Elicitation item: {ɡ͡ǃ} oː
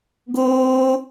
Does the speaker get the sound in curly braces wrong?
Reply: yes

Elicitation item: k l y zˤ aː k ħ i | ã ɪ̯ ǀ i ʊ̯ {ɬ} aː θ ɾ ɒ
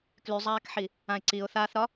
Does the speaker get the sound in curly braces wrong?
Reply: yes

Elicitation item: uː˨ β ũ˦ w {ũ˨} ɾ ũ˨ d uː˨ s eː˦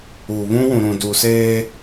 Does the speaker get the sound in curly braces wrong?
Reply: no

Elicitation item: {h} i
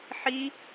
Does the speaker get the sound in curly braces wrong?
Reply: yes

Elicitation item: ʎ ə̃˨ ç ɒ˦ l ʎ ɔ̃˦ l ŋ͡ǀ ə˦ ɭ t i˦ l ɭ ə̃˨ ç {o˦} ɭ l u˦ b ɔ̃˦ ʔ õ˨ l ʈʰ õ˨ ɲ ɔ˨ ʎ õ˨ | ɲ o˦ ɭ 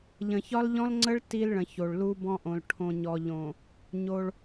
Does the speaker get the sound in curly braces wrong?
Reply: yes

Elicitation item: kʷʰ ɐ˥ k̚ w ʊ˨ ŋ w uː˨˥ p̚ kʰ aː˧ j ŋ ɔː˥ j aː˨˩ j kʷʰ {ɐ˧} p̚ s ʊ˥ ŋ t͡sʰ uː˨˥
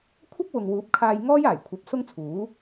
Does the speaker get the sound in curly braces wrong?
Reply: yes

